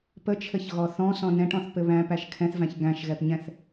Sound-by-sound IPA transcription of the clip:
p ə t͡ʃʰ ɘ ç ɣ ɔ θ ɔ̃ s ɔ̃ n ɛ̃ ʈ ɔ̃ θ p ɘ β æ̃ p æ ʃ kʰ ɛ̃ θ v æ̃ ç ɡ æ̃ ʃ ɣ ɛ p ɲ ɛ̃ θ

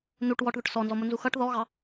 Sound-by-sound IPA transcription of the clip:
n u ʈ w ɔ ʈ ð ʊ ʈ s ɔ n z ɔ m ʊ n z u x ʌ ʈ ð ɔ ɣ ɑ

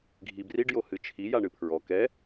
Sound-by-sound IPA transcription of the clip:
ɡʱ i b r i ɖ j o h ɨ t͡ʃʰ i j a ɳ ɨ pʰ ɹ ɔ k ɛ

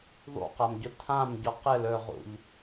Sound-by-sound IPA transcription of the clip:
ðˤ ṵ q a m ɟ ʊ tʰ ã m ɟ ɔ q ɘ l ɵ ʁ ṵ ʎ

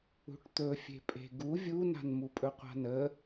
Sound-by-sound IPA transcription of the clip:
ṳ ʈ t̪ ɵ fʲ e̤ pʼ e̤ ɡ u vʲ u n a̤ n m u pʼ ɵ qʷ a̤ n ə

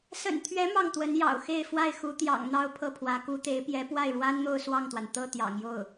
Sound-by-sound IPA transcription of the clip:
s ə̰˨˩ n t̪ʰ ɥ ɛ˧˥ m ɑ˥˩ ŋ t̪ w ə˧˥ n j ɑ̰˨˩ ʊ̯ x e˥˧ ɪ̯ f w a˥˩ ɪ̯ x u˧˥ t̪ j ɑ̰˨˩ ŋ n̪ ɑ˥˧ ʊ̯ pʰ ɤ˥˩ pʰ w ä˧˥ k u˧˥ t̪ e˧˥ ɪ̯ p j ɛ˧˥ p w a˥˩ ɪ̯ ɻ w a˥ n n̪ o˥˧ ʊ̯ s w ɑ˥˩ ŋ t̪ w a˩ n t̪ ɤ˥˩ t̪ j ɑ̰˨˩ ŋ j o˥˩ ʊ̯

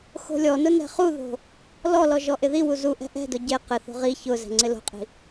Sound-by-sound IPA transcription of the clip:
x o̤ lʲ ɔ n ʊ n ɛ̤ χ u ð o̤ | l ɔ l ɔ ʒ ɔ ʔ ɪ ð i w u z u ʔ ɛ̤ ʔ ɛ̤ d ʊ ɟ e q ɪ θ o̤ ʁ i ç ʊ z ɛ̤ ŋ͡ǀ ɪ l o̤ qʼ i̤

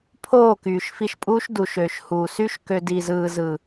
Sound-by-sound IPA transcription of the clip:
pʰ oː˦˨ k yː˨ ʃ f i˧ ʃ pʼ uː˦ ʃ d u˨ ʃ øː˨ ʃ h uː˨ s y˦ ʃ k ø˧ d i˨ z ɯː˨ z ɯ˨

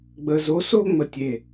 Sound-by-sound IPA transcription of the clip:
ɡ͡b ə˧ z o˧˥ s o˥ ŋ͡m ə˧˩ tʲ e˧˩

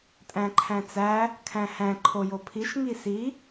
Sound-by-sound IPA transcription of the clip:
tʼ æ̃ ǃʰ æ̃ t͡s æ | kʰ æ̃ h æ̃ ǃʰ o j o pʰ i ʃ ŋ i s i

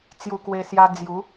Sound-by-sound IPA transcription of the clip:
t͡s j u˧ k w e˧ s j a˧ d͡z j u˨˦

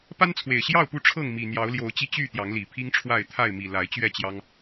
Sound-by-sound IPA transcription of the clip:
p a˦ n t͡sʰ w e˨˩ ɪ̯ ɕ j ɑ˥˨ ʊ̯ p u˥˨ ʈ͡ʂʰ ɤ˥˨ ŋ m i˨˩ n̪ j ɑ˨˦ ʊ̯ l j o˨˦ ʊ̯ t͡ɕ i˥˨ t͡ɕ y˥˨ t̪ j ɑ˨˦ ŋ l i˨˩ pʰ i˦ ŋ ʈ͡ʂʰ w a˥˨ ɪ̯ t̪ʰ a˥˨ ɪ̯ m i˨˩ l a˨˦ ɪ̯ t͡ɕ ɥ ɛ˥˨ t͡ɕ j ɑ˦ ŋ

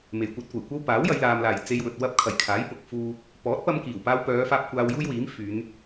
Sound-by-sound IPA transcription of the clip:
m e˨˩ j kʷ ɐ˧ t̚ kʷ ɐ˨˩ j kʷ ɐ˥ w p aː˨˥ w j ɐ˨˧ j l aː˨ m l aː˨˩ j t͡s e˧ j w ɵ˨ t̚ w ɐ˥ p̚ kʰ ɐ˨˩ j kʰ aː˨˥ j p ʊ˨˥ k̚ f uː˥ | p ɔː˨˥ t̚ p ɐ˧ m k iː˨˩ w p aː˧ w p œː˨˧ f aː˧ p̚ kʷ aː˧ w j uː˥ j w iː˨˥ m f yː˨˧ n

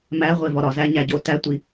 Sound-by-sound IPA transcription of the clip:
m æ ʁʷ e v ɒ ɾ ɒ z æ ɲ æ ɟ o t æ tʷ i

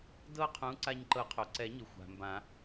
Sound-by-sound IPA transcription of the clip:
d ɤ˥˧ qʰ ũ˨˥ ǀ a˧ ɲ ǃ ɤ˨˩˦ qʰ o˩ ǀ ɛ˨˩˦ ɲ ɯ˩ xʷ a̤˩ m b ã˨˩˦

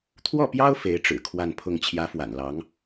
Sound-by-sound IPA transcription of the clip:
t̪ʰ w ɔ˥˩ p j ɑ˥ ʊ̯ f e˧˥ ɪ̯ ʈ͡ʂ ɻ̩˨˩ kʰ w a˥˧ n pʰ ʊ˥˩ ŋ t͡ɕʰ j ä˧˥ f w a̰˨˩ n l ɑ˧˥ ŋ

